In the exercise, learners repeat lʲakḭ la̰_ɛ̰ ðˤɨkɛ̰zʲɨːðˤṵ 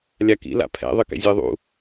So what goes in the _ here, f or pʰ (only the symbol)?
pʰ